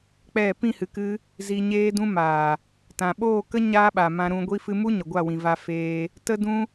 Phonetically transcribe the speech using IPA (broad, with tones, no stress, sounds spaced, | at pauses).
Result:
k͡p ɛ˦˨ p ĩ˦˨ h ɨ˨ k ɨ˧ | z i˧ ɲ eː˦ d ũ˦ m aː˨ | t ã˨ ɓ oː˦˨ k ə˦ ɲ aː˦ ɓ a˨ m ã˧ ɾ ũ˧ ɡʷ i˧ f ɨ˧ m u˦ ɲ ə˨ ɡʷ a˦˨ w ĩ˨ v a˧ f eː˧ | t ə˦ d ũ˦